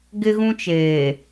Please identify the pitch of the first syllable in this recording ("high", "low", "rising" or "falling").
high